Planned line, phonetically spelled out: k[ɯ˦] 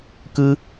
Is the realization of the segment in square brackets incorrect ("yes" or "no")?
no